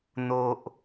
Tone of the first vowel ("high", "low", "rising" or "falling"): high